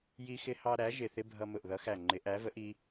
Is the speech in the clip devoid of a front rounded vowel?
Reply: yes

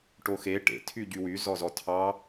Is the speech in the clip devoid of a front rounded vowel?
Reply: no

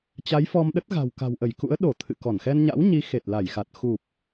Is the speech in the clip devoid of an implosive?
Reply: no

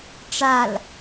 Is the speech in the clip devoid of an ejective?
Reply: yes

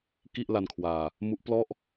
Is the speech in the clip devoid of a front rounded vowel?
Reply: yes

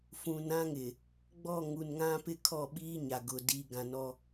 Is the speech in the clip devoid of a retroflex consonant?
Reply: yes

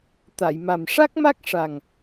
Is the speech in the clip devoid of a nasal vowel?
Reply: yes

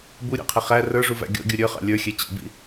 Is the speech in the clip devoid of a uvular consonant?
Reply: no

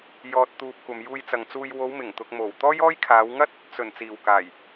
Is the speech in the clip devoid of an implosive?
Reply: yes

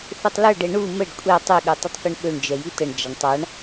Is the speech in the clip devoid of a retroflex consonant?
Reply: no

